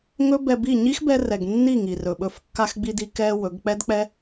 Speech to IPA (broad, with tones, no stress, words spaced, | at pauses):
ŋɵ˦bɛ˧bi˦˨ ɲi˦xbɛ˧rɛ˨ɡ nːi˦˨ŋi˨rɵ˨ɓɵ˧f kːa˧xɡ͡bi˧di˧kɛ˧ wɵ˨˦ɡ k͡pɛ˦dk͡pɛ˦